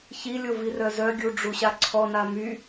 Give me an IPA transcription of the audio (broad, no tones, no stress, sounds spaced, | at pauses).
ç i lʲ o v i r œ z œ ɡʲ u ɖ͡ʐ u ɕ a ǀʰ ɔ n a m y